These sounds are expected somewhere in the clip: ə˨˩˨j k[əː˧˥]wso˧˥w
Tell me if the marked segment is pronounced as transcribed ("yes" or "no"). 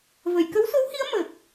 no